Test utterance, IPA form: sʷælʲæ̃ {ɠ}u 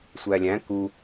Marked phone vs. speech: incorrect: k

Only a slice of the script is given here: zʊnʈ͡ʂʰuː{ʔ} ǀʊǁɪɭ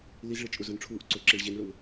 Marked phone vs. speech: correct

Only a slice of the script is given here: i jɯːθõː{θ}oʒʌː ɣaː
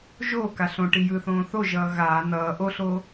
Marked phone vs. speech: correct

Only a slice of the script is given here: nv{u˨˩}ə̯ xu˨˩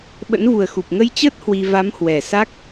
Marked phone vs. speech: correct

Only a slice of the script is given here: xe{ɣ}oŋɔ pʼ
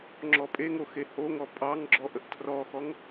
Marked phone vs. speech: incorrect: h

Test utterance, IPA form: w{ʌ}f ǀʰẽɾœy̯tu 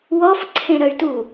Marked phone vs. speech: incorrect: ɔ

